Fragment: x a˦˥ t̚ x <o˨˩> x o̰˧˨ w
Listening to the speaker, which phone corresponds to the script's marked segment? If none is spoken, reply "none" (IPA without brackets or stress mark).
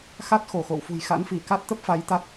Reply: o˧˩